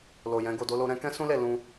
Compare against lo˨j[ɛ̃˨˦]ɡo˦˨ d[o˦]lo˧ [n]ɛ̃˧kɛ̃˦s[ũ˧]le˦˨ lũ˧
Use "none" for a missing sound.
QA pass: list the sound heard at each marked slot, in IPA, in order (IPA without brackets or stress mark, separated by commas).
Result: ɛ̃˨˦, o˧, ɾ, ũ˦